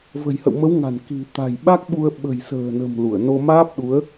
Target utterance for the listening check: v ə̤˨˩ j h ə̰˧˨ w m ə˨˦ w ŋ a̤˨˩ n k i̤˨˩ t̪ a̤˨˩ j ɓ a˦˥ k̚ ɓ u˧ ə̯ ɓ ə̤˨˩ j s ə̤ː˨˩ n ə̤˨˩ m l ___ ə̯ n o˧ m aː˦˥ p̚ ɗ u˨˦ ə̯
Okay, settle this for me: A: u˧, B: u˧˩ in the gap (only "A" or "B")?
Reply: B